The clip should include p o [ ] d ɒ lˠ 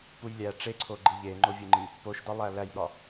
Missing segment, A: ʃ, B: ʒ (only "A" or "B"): A